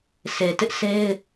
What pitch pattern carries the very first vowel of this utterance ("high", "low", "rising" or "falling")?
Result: low